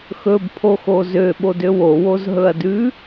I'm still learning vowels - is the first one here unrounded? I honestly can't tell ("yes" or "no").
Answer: no